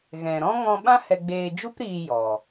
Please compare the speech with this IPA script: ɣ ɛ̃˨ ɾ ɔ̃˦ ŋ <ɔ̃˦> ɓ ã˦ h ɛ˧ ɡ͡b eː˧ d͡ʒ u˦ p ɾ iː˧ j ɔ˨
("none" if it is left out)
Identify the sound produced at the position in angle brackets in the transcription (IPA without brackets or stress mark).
ɔ̃˧